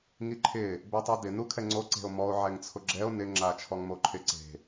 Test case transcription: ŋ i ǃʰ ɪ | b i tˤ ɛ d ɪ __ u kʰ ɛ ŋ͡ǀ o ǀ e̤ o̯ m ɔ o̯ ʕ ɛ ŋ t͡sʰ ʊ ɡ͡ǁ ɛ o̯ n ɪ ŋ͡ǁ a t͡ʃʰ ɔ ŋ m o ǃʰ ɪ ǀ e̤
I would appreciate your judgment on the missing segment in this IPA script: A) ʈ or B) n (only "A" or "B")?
B